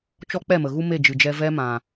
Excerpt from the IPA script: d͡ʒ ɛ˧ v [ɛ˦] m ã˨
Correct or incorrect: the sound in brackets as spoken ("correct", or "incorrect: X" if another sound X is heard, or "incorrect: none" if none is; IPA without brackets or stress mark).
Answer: correct